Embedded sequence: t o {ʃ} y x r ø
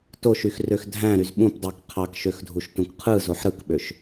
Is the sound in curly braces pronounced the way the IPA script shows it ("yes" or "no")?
yes